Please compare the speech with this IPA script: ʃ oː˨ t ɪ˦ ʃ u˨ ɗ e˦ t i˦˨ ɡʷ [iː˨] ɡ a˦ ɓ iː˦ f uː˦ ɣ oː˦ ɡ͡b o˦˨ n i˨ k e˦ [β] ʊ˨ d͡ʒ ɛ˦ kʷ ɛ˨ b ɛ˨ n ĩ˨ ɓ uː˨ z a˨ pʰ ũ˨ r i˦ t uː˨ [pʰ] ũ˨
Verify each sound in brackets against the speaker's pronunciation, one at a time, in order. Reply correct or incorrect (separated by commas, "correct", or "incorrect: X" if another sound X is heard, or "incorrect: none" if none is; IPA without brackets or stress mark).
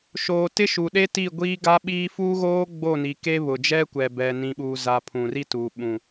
incorrect: iː˦, correct, incorrect: ɓ